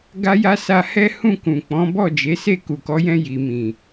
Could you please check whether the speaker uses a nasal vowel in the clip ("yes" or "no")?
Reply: yes